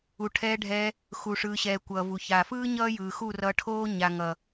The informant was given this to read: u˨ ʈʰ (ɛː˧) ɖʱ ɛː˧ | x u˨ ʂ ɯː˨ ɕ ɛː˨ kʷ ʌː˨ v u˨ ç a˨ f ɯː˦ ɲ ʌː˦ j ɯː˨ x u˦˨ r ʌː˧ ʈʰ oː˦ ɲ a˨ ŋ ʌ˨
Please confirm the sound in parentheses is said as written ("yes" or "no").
yes